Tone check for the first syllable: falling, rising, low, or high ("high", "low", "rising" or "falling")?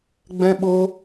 high